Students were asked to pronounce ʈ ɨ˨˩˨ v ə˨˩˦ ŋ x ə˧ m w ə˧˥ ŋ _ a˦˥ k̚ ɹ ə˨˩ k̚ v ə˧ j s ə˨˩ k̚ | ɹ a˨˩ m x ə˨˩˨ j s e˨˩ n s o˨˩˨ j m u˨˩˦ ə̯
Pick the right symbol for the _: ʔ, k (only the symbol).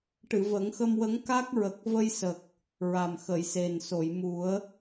k